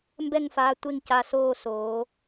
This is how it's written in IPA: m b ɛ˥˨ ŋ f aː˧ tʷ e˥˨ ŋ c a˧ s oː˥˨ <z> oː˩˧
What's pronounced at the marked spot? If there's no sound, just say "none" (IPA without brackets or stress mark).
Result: s